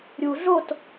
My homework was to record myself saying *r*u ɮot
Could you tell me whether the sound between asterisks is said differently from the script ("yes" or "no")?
yes